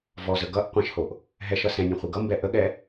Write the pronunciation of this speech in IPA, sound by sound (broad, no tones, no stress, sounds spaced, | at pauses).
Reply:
v ɔ z ə ɡ ʌ ʔ qʷ ɛ̃ ʃ h o ʔ | ɦ ɛ ʃ ʌ s ɛ̃ nʲ õ χʷ i ɡ ʌ m b ɛ ʔ ə ɠ ɛ